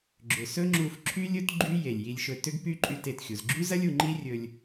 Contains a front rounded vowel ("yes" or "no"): yes